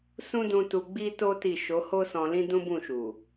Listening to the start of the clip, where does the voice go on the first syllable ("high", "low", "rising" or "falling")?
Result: high